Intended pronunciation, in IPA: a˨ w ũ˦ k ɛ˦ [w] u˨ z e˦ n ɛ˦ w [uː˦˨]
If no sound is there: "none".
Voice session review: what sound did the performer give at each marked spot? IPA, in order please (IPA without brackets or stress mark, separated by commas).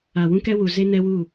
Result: w, uː˦˨